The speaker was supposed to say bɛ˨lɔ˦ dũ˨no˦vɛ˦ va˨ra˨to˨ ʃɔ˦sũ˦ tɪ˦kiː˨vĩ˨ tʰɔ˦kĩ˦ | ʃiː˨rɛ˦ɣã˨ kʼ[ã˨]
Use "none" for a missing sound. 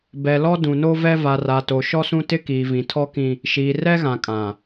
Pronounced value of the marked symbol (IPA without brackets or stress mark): ã˨